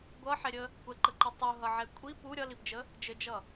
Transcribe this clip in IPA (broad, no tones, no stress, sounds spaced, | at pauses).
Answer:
ɡʷ ʌ ħ ɛ ɾʲ ə | kʷ ɛ ǃ ə ǃ ɘ tˤ u ɦ ʌ ʕ ɛ kʷʼ i p u ɾʲ ʌ l i p d͡ʒ ə | d͡ʒ ɘ d͡ʒ ʌ